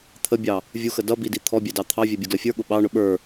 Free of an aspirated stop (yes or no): no